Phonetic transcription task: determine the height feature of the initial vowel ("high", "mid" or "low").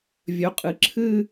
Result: mid